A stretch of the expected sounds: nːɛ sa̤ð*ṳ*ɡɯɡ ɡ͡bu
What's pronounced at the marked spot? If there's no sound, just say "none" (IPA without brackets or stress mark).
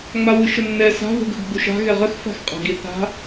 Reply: ṳ